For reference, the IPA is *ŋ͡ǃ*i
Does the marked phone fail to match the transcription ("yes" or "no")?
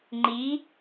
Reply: no